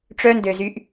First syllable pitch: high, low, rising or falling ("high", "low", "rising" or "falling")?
high